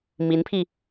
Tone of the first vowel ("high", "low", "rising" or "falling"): rising